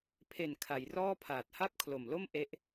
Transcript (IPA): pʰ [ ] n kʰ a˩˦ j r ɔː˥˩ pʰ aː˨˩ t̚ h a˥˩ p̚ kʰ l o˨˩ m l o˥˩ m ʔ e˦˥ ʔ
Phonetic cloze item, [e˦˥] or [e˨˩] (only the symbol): e˨˩